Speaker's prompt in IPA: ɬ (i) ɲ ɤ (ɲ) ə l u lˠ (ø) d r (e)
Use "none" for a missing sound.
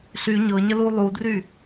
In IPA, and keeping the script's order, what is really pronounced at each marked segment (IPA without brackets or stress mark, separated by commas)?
y, ɲ, u, y